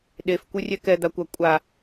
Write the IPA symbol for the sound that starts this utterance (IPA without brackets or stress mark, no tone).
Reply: ɗ